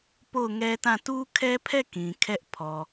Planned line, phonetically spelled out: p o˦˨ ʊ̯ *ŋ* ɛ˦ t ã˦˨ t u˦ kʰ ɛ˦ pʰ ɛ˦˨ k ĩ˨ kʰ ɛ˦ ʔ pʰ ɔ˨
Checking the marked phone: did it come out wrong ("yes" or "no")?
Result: no